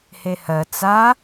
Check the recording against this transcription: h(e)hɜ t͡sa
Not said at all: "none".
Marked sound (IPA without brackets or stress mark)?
e